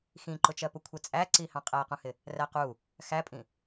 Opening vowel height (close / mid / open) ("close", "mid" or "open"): close